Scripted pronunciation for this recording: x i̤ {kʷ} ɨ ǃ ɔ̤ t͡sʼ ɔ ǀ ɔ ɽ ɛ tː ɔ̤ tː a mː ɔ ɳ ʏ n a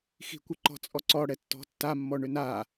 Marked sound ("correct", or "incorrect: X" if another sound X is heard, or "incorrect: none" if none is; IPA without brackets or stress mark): correct